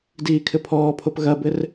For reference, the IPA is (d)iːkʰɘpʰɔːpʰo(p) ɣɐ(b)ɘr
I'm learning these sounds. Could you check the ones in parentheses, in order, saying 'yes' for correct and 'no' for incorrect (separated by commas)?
yes, yes, yes